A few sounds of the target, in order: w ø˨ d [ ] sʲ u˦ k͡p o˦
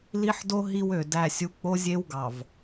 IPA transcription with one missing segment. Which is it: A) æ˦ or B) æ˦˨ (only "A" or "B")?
B